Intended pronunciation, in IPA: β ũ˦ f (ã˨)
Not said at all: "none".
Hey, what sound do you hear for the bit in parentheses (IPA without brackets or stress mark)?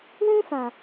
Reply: ã˨